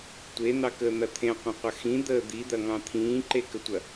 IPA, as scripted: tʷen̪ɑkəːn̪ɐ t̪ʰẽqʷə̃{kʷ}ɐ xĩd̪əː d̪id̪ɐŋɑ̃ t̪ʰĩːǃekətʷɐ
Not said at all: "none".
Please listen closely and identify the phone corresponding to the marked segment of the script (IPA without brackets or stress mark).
qʷ